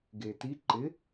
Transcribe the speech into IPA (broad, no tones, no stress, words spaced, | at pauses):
ɡeti ǃɪ